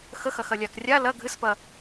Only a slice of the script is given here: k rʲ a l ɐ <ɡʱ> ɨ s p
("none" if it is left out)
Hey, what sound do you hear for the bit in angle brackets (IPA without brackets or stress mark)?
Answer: ɡʱ